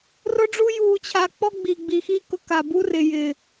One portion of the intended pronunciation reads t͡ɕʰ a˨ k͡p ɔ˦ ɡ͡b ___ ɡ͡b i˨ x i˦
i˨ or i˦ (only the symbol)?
i˨